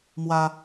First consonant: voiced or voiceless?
voiced